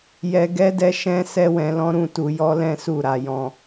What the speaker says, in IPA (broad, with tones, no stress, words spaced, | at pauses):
jɛ˧ɡɛ˦dɛ˦ʃɛ̃˦ sɛ˦wɛ̃˧lɔ̃˦ ɾũ˦˨tu˧jɔ˦ lɛ̃˦su˦˨ɾa˧ jɔ̃˦